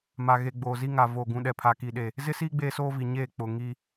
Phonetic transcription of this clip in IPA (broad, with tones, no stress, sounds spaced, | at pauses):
m a˨ ɣ e˨ ɡ͡b oː˨ z i˦ ŋ a˨ v o˨ ɡ ũ˨ ɗ ɛ˨ pʰ a˨ k i˨ ɗ e˨ | z ɪ˦ s iː˦ ɡ͡b eː˦ s oː˦ v i˨ ɲ eː˦˨ k͡p ʊ˨ ŋ i˦